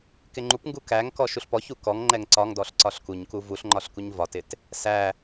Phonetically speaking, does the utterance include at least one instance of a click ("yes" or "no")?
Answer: yes